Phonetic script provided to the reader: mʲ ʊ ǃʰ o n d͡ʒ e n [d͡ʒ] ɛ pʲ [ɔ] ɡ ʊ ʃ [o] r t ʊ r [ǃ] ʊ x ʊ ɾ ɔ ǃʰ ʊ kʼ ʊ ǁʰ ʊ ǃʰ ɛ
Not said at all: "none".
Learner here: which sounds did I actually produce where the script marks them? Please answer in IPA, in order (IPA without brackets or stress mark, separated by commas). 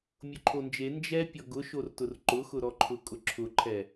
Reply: d͡ʒ, ɔ, o, ǃ